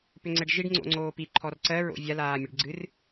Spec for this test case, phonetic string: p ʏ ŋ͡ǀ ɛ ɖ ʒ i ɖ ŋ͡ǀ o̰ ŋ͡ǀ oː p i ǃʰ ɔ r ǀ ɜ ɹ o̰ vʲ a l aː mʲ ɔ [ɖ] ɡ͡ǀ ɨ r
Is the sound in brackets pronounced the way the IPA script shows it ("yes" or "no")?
yes